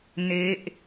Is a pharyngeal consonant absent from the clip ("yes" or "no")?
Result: yes